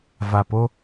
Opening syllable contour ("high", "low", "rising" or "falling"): low